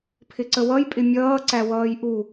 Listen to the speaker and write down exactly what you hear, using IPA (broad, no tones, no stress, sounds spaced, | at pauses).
pʰ ɪ ǀ ə w ʌ j pʼ ɪ mʲ ʌː ǀ æ w ʌː j ʔ u